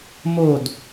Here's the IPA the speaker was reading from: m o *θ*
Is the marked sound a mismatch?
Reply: yes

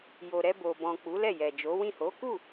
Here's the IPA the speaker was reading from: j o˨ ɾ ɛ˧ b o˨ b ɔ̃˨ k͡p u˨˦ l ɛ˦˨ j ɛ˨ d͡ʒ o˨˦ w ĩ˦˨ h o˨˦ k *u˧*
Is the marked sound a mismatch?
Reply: yes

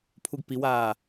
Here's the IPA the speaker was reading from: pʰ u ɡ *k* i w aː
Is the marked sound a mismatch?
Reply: yes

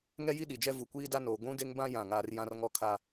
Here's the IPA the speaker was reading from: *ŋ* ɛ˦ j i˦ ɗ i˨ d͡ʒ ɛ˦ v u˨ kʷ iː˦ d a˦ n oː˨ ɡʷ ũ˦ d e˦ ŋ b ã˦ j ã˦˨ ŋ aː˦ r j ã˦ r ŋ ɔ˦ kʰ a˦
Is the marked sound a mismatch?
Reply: no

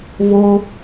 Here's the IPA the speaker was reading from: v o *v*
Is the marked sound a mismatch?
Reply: yes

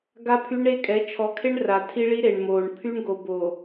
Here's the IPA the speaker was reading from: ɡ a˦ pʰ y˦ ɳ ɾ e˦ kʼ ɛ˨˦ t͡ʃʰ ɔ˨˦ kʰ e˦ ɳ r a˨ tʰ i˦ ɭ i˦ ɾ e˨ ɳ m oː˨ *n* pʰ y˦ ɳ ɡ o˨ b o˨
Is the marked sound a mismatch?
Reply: yes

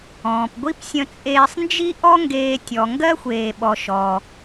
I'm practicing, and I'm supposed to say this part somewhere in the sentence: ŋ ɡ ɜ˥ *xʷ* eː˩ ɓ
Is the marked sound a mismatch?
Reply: no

